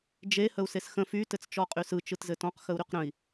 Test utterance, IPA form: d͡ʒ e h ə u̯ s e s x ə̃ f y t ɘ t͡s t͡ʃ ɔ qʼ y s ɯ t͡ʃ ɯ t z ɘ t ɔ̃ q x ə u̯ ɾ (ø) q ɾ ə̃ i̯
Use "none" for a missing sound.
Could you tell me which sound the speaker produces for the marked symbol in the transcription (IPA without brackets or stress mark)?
y